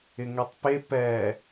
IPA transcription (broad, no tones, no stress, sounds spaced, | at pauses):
ɪ ŋ ɛ tˤ p e p ɛ